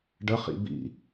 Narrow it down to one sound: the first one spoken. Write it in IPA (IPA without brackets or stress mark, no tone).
ɖ